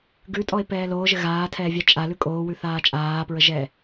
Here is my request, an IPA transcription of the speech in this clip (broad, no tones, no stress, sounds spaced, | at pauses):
ɡ ʉ tʼ ɔ e̯ p ɛː l oː ʒ ɘ ɣ aː tʰ ɛː vʲ a t͡ʃʼ a l ʉ kʼ oː w ʉ θ aː t͡ʃʼ aː p ɹ ə ʒ ɛː